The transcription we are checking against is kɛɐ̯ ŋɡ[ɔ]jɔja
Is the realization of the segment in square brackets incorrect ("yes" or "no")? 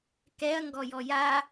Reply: no